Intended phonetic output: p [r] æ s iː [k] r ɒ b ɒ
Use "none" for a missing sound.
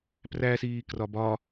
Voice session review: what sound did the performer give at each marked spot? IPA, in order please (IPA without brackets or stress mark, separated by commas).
r, k